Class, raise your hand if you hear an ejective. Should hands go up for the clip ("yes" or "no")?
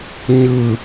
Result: no